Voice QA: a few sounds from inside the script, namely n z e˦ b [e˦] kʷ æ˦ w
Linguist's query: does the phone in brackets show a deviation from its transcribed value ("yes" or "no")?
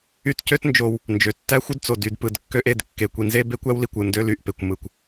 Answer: no